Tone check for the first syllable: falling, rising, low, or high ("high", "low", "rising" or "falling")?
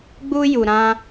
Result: high